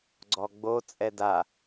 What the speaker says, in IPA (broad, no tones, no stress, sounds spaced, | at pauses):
ɡ͡ǀ ɔ ɡ͡b o t͡sʼ ɛ d a